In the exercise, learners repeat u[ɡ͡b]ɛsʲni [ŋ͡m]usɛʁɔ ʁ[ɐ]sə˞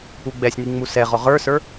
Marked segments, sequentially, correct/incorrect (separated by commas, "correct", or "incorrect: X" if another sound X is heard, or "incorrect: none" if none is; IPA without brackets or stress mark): correct, correct, incorrect: ə˞